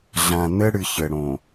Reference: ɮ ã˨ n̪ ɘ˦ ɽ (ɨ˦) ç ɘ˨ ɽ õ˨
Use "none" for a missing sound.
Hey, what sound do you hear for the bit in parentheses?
ɨ˨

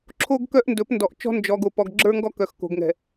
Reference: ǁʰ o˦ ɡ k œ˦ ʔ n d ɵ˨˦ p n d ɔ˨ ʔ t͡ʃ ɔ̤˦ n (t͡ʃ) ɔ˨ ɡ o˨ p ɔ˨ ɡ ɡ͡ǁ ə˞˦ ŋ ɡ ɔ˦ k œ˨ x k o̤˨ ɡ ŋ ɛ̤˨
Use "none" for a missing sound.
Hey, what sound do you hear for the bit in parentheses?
d͡ʒ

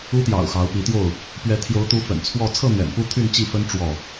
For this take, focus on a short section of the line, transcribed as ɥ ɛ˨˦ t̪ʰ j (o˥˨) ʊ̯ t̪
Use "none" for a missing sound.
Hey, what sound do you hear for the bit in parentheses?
o˨˦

